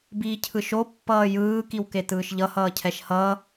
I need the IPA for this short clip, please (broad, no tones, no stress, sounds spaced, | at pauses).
b iː cʰ ɯ ʃ o pː ʌː j ɯː k i w k e t ɯː ʃ ʎ ʌ h ʌː cʰ ɛ ʃ h ʌː